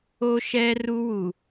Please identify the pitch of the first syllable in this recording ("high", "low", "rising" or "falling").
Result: high